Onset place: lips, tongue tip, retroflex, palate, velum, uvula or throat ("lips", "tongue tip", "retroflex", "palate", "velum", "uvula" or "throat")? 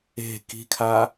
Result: velum